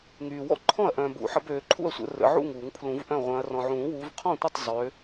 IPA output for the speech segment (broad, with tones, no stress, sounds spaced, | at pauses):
ŋ yː˨ w ɔ̰˥˩ ǃʰ ɔ̃˥˩ ɐ̯ ʔ œ̃ː˨ b ṵ˨˩˦ ħ ə˨˦ b øː˨˦ ǃʰ ṵ˥˩ ɐ̯ sʷ ə̰˨˩˦ r ə̰˨˦ ʕ ṵ˥˩ ŋ uː˨˩˦ ŋ pʰ l ũ˨˩˦ v ʔ œ̃˥˩ ʁʷ œ̃˨˦ ɐ̯ r ɔ̃˨ ʕ ũː˨˩˦ w uː˨˦ v qʰ ɔ̃˥˩ tʷ ə˥˩ tˤ zˤ ø˨˦